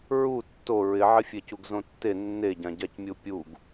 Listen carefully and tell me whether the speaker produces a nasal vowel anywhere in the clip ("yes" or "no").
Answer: yes